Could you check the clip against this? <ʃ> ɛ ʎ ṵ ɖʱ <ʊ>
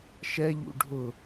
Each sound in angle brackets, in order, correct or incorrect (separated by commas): correct, correct